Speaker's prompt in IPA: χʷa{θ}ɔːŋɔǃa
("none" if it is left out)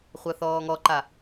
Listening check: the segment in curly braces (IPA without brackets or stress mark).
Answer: θ